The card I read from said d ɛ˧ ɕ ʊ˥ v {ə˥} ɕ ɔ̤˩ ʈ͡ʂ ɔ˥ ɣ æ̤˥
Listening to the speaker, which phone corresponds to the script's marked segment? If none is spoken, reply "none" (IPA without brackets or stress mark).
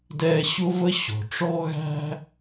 ə˥